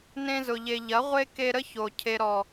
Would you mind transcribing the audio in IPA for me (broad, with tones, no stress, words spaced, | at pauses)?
nẽ˧zʊ˨ʎe˨ ʎɐ˨˦ʁʷe˦ ke˧ ɾə˦ço˨ cʰe˨ɾɔ˨